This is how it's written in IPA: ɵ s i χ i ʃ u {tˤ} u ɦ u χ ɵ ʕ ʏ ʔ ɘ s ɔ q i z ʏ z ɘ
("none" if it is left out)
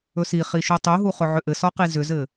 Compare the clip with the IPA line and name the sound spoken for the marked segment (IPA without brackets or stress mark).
tˤ